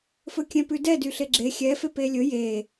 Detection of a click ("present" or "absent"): present